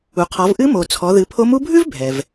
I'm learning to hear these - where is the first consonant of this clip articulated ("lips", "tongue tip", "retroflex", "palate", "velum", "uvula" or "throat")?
uvula